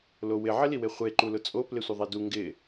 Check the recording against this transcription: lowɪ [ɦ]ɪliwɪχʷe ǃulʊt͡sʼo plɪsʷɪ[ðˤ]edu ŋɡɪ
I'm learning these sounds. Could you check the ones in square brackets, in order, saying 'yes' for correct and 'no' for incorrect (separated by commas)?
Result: no, yes